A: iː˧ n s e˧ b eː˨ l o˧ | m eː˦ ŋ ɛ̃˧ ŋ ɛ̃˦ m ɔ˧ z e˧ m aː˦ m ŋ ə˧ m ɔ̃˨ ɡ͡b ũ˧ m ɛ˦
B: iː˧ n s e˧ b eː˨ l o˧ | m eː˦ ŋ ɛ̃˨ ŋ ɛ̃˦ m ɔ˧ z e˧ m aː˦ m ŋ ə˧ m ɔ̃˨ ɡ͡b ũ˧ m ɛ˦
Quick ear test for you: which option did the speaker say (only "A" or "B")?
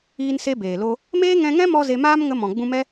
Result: A